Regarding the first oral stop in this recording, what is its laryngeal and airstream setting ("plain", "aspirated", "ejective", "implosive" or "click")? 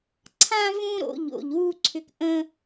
click